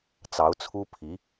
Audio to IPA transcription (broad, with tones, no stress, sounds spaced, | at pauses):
t͡s ɑ˧˥ ʊ̯ t͡sʰ u˥ pʰ i˧˥